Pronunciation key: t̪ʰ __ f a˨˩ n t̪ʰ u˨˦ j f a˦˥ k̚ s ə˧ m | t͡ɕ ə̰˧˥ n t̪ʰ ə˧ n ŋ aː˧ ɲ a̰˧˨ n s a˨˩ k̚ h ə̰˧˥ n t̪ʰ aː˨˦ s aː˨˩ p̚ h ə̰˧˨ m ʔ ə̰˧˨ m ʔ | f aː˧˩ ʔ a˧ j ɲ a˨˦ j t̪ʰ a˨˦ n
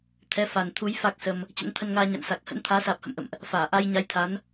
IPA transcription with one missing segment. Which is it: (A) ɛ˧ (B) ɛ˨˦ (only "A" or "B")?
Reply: B